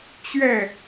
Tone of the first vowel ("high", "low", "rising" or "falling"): falling